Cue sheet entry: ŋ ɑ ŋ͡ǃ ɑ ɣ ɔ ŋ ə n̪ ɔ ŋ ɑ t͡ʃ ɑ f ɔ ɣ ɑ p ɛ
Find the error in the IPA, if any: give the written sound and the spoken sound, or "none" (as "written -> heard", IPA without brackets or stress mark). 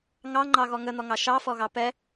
t͡ʃ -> ʃ